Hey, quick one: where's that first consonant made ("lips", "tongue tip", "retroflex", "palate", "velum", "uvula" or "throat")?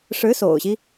retroflex